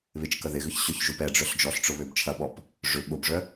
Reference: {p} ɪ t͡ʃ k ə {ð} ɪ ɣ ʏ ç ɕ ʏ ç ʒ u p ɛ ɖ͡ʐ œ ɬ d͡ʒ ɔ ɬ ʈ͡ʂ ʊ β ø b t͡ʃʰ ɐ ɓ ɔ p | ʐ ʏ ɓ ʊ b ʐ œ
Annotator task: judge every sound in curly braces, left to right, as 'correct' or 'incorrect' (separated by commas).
incorrect, correct